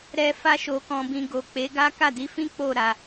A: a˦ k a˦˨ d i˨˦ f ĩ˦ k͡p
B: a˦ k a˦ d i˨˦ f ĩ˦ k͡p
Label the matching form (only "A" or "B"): A